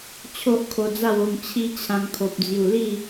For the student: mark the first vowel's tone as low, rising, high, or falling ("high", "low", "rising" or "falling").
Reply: high